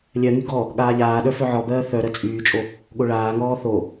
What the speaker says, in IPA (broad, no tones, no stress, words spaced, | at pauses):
lʲɜŋy ɡɔ | ɠaːʎaːɗœ fœʕɔbɜː θœ ɾɜt͡sʼyːt͡ʃʼo | ɠoɭaːŋɔː θo